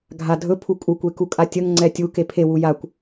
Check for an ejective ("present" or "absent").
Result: present